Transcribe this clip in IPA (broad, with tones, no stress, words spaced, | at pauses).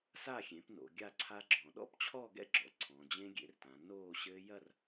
sa˥˨xʲẽ˩˥pno̰˩˧ ɡʲa˥˨ǀʰa˦˥ɡ͡ǁɔ̃˩˧ ɗɔ̰˦˥pt͡ɕʰɔ˥˨ɡɛ̰˥˨ɡ͡ǁɔ̰˩˧ ǀʰɔ̃˩˧d͡ʑẽ˦˥ ɡʲḛ˩˥rtã˩˧ noː˥˨ɕɘː˦˥ jɐ˥˨r